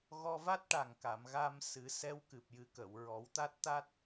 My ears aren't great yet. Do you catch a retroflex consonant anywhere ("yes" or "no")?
yes